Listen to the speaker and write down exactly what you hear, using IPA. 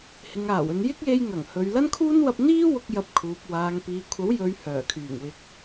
h ɪ˨ ŋ aː˨˩ w ɵ˨ n j ɪ˥ k̚ j e˧ j ŋ ɐ˨˩ ŋ h ɵ˨ ɥ l ɐ˧ n kʰ uː˧ n w ɐ˧ p̚ n̪ iː˥ w ʊ˧ k̚ j ɐ˨˥ p̚ kʰ uː˨ p̚ w aː˨ ŋ p iː˨ kʷʰ ɐ˨˥ w j ɵ˨˧ ɥ h œː˨˩ kʰ yː˨˩ ŋ w ɪ˨˥ k̚

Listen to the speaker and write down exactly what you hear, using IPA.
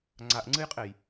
ŋ͡ǀ a ʔ ŋ͡ǀ ɨ j qʼ e j

